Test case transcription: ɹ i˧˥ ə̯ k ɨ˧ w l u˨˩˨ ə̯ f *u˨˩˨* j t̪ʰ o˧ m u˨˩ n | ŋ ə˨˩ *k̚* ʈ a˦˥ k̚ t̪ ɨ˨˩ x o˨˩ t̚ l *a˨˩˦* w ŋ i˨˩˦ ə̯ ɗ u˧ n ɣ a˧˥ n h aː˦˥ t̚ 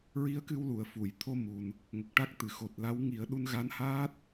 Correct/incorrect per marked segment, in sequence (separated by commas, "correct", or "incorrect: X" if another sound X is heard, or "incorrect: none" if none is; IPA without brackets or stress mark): correct, correct, incorrect: a˧˥